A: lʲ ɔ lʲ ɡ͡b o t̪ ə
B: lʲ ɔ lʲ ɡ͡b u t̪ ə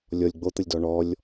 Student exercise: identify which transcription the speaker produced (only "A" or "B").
A